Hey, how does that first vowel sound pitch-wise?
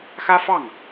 high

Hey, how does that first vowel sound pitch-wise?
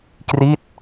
falling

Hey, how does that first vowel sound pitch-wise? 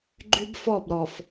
high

